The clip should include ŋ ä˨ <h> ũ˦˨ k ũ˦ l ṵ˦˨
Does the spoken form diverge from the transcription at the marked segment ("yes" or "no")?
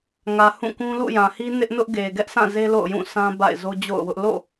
no